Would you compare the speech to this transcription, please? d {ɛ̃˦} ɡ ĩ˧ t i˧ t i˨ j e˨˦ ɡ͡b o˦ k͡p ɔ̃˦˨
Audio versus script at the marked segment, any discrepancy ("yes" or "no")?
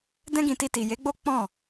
no